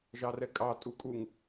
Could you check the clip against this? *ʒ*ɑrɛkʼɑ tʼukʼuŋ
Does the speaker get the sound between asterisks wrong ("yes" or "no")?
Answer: no